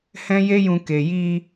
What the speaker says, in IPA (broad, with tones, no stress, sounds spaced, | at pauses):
h ɛ̃˦ j e˦ j ũ˧ k e˨ j i˧